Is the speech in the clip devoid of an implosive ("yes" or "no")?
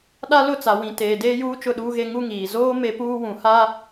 no